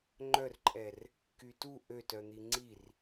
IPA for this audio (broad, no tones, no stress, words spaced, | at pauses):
ŋ͡ǃœrǃʼɛr | kytu ʔøtœn̪i ŋ͡ǀir